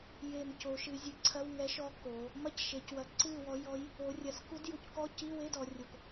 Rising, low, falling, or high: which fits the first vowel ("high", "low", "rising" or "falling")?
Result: low